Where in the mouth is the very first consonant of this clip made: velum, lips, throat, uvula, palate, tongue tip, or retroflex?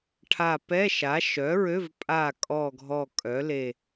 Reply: retroflex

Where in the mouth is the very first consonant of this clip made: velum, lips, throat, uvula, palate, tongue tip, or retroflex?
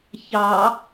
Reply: palate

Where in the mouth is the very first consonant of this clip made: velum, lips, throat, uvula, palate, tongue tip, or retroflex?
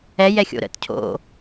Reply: palate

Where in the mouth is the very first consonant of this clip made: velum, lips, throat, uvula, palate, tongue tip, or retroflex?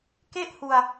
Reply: velum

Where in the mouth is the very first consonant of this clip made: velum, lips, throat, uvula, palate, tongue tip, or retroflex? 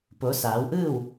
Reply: lips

